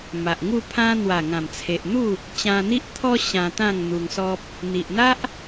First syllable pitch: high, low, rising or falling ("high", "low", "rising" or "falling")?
low